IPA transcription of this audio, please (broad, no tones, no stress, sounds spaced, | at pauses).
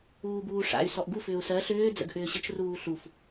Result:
uː b uː ʂ a̰ y̯ s ɔ ʔ ɡ u f ʏː u̯ s ɜ ɬ ʏː d͡z ə̰ ɡ ʔ ʏː ɕ ə t͡ʃ r uː ɬ u f